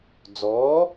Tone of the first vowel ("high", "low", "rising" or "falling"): rising